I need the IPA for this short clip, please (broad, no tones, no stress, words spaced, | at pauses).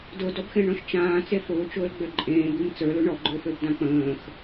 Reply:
dʊdɔbxẽɳɔ̃ʃ t͡ʃãːt͡se fʊːt͡ʃʊːlɡ͡bø ǃʼẽːbim t͡sə˞lʊ ɳɔɡ͡ǃøføbdã k͡pə̃ːx